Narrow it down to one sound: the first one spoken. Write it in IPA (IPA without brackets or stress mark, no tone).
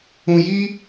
ũ